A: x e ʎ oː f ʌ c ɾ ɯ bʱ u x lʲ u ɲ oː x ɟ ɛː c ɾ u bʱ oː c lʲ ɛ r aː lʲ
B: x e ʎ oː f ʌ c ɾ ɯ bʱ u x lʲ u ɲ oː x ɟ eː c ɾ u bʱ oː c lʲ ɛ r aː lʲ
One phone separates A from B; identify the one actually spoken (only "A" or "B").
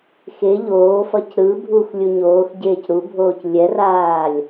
B